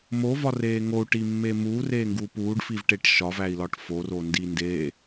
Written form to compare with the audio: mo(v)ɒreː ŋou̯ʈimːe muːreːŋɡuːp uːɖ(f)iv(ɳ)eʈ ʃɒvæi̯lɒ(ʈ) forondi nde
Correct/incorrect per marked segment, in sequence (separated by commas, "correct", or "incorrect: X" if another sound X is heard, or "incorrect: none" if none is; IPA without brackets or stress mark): correct, correct, incorrect: ʈ, correct